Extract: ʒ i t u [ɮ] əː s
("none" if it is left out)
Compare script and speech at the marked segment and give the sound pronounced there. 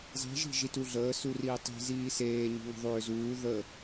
ɮ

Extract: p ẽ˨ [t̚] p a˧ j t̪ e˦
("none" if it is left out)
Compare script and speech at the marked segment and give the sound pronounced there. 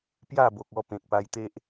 k̚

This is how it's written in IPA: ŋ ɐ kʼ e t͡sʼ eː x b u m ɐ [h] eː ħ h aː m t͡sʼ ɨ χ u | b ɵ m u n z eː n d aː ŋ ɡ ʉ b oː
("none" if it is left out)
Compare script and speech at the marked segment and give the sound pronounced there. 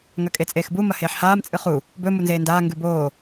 h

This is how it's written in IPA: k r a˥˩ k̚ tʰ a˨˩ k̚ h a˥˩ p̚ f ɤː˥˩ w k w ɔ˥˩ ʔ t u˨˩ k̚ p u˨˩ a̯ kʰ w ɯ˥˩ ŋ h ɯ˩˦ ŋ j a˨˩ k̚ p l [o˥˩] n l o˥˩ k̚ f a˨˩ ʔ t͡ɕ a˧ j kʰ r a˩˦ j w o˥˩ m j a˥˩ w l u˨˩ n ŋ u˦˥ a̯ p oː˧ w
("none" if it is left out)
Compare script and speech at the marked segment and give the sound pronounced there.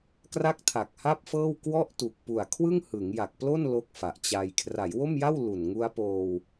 o˥˩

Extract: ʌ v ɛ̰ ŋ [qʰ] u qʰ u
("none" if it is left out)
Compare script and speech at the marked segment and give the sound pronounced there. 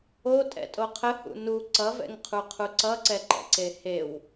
qʰ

